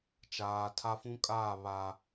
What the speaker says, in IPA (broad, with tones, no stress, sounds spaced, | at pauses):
t͡ʃ aː˨ tʰ a˦ f ũ˦ kʼ aː˦˨ β a˨